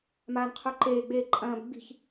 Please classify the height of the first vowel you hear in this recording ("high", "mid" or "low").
low